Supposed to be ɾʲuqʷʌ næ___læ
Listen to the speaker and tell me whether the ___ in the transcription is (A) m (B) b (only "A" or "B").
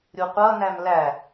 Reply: A